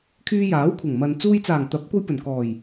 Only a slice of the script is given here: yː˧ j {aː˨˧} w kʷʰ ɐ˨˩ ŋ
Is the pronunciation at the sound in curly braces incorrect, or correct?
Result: incorrect